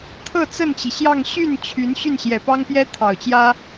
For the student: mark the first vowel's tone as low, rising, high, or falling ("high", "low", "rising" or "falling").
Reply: falling